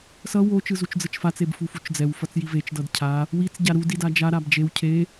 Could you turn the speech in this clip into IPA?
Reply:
sʌ wo t͡ʃɯzut͡ʃd͡zɯt͡ʃfat͡s ebfufut͡ʃd͡zɛw fʌt͡sjivet͡ʃ dʌdcʰa | wit͡s ɟaɾu didad͡ʒa ɾabd͡ʒew cʰe

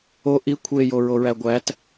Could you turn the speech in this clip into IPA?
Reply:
o ʔi kʷʰejoɹoɹæ ɡʷæt

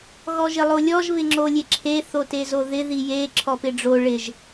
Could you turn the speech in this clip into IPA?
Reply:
ɣɔʒɪlˠolʲɔʒ βɪŋ͡ǁolʲeǁʰe θotezoðɪ ðije ǁʰɔpɪɖ͡ʐo ɭɪʒ

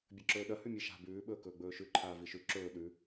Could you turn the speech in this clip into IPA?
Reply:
bʲɐǁɵːɗɐ hʉmʲɨʃa̤ bʉː ɓɵːkɵːɡ͡bɵːʃʉ ǃʰaːviʃʉ ǁɵː ɗʉ

